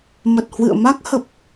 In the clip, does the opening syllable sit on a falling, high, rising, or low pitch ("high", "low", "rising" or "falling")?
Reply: low